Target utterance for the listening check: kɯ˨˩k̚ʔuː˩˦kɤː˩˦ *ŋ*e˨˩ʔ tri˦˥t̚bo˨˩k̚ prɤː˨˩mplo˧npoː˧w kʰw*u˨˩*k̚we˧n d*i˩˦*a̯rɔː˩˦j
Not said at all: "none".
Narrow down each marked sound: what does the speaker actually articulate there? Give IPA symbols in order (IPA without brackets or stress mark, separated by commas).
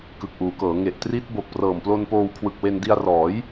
ŋ, ɯ˨˩, i˧